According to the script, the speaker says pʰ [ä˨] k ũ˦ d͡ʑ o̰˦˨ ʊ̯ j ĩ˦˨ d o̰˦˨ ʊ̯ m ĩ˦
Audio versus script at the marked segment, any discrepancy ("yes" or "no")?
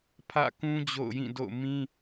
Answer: yes